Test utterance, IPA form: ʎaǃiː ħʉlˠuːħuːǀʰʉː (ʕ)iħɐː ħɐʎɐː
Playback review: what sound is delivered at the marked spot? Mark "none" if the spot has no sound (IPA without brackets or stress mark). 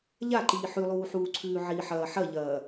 ʕ